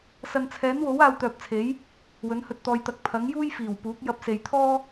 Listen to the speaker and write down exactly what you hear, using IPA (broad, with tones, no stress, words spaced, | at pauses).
sɐ˨nt͡sʰɛː˨˥nwo˨˥w aː˧wt̪œː˨p̚t͡sʰe˨˥j | wɵ˨˥nhɵ˧t̚t̪ɔː˧jt̪ɐ˧k̚ pʰɐ˨˥ŋjuː˥j fiː˨˩w puː˨˥k̚jɐ˧p̚ se˨jt̪ʰɔː˥